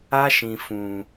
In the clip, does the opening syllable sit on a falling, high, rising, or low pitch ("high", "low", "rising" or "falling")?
high